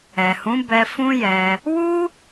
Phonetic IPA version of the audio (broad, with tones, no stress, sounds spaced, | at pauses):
ɛ˨ h ũ˨˦ b ɛ˧ f ũ˦ j ɛ˧ | w u˦